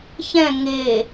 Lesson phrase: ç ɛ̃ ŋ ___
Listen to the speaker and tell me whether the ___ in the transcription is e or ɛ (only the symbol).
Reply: e